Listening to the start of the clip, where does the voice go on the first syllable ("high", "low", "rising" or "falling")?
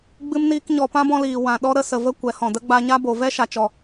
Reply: high